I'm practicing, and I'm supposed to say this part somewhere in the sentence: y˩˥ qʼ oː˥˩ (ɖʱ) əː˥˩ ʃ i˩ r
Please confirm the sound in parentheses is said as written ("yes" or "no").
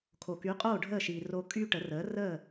yes